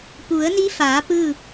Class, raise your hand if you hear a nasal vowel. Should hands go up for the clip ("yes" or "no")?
no